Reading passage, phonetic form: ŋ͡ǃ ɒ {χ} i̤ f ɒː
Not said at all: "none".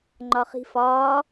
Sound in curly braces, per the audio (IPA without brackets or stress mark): χ